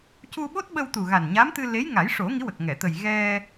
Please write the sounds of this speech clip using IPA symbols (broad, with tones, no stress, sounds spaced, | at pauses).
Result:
c u˧ ɓ o˦˥ t̚ ɓ ə˧ w t̪ u˨˩ ɣ a˨˩ n ɲ a˧˥ m t̪ ɨ˧ l e˧˥ j ŋ a˨˩˦ j ʂ o˨˩˦ ŋ i˧˥ w ə˨˩ k̚ ŋ ɛ˨˩˨ t̪ ə˨˩ j ɣ ɛ˧